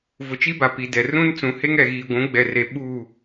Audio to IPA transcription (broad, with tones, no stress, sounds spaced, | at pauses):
v ʊ˨ t͡ʃ i˦ b a˨ p i˨ d ɛ˨ r ũ˦ n t͡s ũ˨˦ h e˦ ŋ ɛ˨ ɣ iː˨ ɡʷ ũ˨˦ ɡ͡b ɛ˨ r e˨ ɓ u˦˨